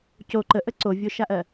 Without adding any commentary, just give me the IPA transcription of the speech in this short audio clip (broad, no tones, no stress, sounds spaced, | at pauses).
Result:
c o ǃ ə ʔ ə ǀ o vʲ o ʃ a ʔ ɜ